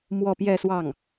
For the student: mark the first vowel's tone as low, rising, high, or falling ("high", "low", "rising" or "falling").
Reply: falling